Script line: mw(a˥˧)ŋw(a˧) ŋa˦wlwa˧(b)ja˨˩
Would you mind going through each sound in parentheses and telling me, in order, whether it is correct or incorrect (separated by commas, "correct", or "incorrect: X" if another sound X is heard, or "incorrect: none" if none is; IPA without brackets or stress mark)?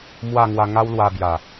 correct, correct, correct